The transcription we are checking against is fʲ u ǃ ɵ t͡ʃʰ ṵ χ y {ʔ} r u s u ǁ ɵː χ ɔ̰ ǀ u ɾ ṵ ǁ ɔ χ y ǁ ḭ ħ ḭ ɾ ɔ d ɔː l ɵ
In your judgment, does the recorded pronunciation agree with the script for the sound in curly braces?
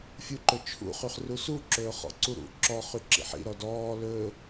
no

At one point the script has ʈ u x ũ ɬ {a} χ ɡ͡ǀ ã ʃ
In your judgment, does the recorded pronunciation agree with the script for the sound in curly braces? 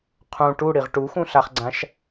yes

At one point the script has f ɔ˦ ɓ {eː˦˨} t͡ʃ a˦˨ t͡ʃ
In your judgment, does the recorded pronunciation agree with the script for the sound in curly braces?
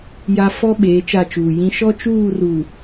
no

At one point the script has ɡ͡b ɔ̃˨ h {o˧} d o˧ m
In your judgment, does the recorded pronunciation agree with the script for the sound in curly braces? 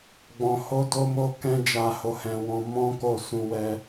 yes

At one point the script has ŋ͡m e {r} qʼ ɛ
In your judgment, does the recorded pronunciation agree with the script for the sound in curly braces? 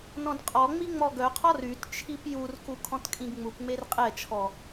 yes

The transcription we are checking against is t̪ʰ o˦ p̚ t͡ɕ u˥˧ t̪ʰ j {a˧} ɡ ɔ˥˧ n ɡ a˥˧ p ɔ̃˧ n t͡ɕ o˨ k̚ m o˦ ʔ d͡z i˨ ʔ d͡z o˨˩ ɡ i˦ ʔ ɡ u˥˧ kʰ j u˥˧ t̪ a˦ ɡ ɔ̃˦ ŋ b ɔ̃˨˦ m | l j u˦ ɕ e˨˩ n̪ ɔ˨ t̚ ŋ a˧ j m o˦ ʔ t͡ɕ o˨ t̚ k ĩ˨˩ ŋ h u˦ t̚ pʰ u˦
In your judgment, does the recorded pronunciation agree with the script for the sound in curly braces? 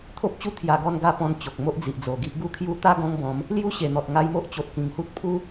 yes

